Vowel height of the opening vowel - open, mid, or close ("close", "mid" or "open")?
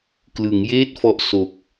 close